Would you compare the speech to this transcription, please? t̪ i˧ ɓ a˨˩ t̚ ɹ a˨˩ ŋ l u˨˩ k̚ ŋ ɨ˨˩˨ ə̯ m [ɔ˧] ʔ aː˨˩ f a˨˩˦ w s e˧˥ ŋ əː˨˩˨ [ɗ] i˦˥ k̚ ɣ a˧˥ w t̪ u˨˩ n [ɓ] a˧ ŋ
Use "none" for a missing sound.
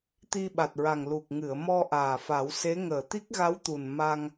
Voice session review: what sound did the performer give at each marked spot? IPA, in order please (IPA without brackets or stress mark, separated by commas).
ɔ˧, t̪, m